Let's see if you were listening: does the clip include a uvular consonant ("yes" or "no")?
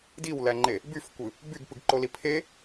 no